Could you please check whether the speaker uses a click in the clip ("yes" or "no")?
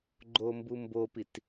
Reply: yes